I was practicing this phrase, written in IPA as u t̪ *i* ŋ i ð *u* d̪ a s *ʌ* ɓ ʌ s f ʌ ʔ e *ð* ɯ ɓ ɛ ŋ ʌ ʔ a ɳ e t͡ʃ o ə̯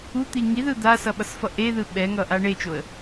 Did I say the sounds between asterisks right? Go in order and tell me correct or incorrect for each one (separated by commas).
correct, incorrect, correct, correct